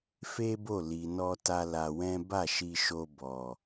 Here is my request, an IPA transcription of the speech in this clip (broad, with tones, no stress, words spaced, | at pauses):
fe˦bo˦˨ li˨ nɔ˧ta˧ la˧wɛ̃˦ ba˦˨ʃi˧ʃo˧ bɔ˨